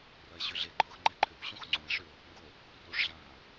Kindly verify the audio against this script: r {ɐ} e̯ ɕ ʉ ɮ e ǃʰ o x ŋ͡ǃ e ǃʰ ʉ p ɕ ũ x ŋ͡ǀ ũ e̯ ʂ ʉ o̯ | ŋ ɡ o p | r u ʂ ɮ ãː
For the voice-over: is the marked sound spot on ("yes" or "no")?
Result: yes